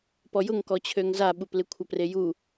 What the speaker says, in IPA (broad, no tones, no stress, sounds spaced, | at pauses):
p ɔ j ʊ ŋ k ɔ t͡ɕʰ ø ŋ z a ɓ u p l ɪ kʷʰ ɐ p r e j u